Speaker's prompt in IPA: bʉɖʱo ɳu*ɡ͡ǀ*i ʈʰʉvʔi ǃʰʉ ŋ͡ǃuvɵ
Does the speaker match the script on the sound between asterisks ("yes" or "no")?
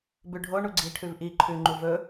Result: yes